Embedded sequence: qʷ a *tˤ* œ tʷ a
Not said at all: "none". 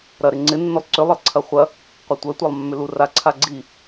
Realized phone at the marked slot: tʷ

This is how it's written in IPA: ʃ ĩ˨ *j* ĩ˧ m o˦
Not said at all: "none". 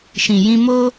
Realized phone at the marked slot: j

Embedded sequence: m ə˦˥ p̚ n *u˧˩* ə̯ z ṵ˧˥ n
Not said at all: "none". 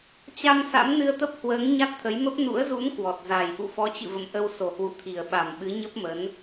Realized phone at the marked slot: ṵ˧˥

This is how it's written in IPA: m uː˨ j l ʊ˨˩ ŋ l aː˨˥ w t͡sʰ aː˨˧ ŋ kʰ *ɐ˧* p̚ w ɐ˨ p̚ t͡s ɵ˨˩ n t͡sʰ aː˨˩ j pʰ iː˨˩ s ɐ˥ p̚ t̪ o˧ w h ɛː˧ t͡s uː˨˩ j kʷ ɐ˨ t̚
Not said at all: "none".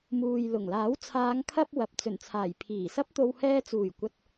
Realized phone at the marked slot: ɐ˧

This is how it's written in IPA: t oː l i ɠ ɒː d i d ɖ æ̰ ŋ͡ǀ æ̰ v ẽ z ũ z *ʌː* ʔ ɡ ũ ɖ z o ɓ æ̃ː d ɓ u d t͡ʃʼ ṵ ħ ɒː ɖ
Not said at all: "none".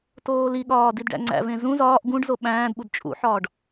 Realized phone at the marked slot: ɒː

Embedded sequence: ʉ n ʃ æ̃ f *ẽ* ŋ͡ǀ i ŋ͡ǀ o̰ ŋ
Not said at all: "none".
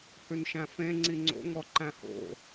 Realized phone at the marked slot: ẽ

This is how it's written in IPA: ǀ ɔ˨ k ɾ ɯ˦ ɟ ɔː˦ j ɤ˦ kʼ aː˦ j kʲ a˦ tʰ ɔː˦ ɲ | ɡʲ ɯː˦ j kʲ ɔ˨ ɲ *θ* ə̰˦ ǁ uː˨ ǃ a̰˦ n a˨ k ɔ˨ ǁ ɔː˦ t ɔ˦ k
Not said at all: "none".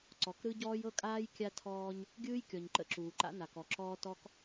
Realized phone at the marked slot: ǃ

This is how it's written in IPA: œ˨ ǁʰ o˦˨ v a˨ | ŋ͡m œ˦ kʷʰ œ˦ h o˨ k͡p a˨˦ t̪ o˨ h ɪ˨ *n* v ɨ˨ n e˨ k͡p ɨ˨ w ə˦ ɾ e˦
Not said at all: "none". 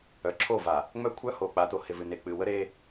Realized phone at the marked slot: none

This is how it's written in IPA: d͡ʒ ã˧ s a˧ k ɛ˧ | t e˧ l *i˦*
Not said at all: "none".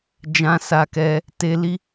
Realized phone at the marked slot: i˦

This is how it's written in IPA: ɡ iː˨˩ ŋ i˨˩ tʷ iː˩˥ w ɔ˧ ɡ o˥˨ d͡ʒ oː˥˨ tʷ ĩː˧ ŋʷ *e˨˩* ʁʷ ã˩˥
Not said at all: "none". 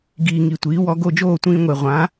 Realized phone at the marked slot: e˨˩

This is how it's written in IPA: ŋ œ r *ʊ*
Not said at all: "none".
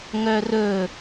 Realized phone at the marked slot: ɵ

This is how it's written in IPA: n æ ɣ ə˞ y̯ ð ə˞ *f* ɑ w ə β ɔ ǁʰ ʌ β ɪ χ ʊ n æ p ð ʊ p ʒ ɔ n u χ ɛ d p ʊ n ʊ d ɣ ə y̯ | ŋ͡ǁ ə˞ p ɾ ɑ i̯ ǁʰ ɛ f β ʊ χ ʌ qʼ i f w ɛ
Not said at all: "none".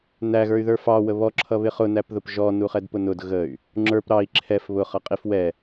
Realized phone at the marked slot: f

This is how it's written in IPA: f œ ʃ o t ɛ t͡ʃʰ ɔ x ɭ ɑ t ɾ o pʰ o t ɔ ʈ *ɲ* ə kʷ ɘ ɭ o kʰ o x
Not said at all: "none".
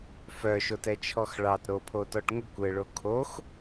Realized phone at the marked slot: ŋ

